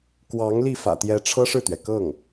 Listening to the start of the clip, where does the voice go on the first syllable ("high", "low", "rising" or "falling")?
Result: rising